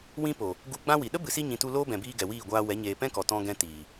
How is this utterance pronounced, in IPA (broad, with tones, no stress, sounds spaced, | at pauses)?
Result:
w ĩ˦ p o˨ | ɡ u˧ ɡ͡b ã˦ w i˨ ɗ ə˦ b ɨ˨ s i˧ ɲ ĩ˨ t u˧ l oː˦ b ɛ̃˨ b iː˧ ɡ ɛ˨ w iː˦˨ ɡʷ aː˧ w ɛ˨˦ ɲ eː˨ p ɛ̃˦ k ɔ˨ t ɔ̃˧ ɡ ɛ̃˧ t iː˨